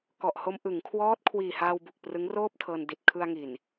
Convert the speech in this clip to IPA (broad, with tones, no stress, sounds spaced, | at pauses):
k ɔ˨˩ ʔ h o˧ m ʔ ɯ˩˦ ŋ kʰ w ɔː˦˥ t̚ kʰ w iː˨˩ h aː˧ w b u˨˩ k̚ p r ɯ˦˥ ŋ r oː˥˩ p̚ tʰ ɤː˧ n d i˨˩ t̚ kʰ ɯ˧ a̯ ŋ i˨˩ n